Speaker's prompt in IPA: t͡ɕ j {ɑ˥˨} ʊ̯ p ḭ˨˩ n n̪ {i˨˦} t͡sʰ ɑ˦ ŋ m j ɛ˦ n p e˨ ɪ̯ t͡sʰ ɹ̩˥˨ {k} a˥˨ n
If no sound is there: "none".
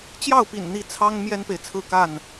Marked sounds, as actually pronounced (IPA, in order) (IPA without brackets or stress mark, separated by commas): ɑ˥˨, i˨˦, k